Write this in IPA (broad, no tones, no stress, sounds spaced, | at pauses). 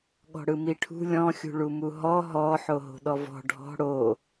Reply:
ɠ ɔ̤ ɽ ɯ m i ʈʰ ṳ lʲ ɔ̃ xʲ ṳ ɭ u m u ɦ ɔ ɦ ɔ ħ o ɦ o̤ ɗ ɔ v ɔ̤ ɖʱ ɔ̤ ɽ o